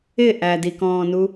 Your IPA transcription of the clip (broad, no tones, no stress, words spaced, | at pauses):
ɪ ʔædikɔ̃ːnu